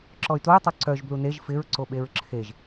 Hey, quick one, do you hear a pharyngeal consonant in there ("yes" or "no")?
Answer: no